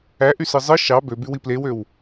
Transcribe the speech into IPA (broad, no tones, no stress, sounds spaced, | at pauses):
æ ʔ y s ɯ zˤ ɯ ʃ ɑ b ø b y w i p l e w ø w